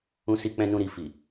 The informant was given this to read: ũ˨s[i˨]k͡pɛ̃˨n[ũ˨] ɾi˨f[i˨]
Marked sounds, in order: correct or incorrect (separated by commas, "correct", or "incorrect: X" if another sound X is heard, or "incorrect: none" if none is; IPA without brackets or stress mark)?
correct, correct, correct